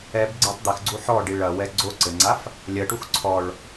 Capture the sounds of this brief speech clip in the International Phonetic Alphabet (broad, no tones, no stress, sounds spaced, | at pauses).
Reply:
ɛ b ɡ͡ǀ ɨ tˤ d̪ ɘ x ɡ͡ǀ u ħ ɔ ɖ i ɭ ɐ w ɛ ɡ͡ǀ o ǀ ɘ ŋ͡ǀ a f | lʲ ɐ ʈ u x ǀʰ ɔ ɭ